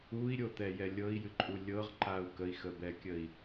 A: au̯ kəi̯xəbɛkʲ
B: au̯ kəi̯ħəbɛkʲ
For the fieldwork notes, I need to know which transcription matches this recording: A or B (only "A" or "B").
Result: A